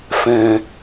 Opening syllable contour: low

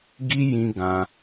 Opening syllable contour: high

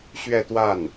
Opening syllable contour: falling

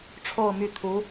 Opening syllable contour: falling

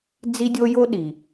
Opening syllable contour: high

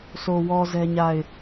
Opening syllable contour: low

